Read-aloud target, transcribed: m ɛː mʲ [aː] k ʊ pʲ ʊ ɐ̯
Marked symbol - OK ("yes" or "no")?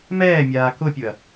yes